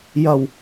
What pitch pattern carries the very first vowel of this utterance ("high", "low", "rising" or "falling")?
low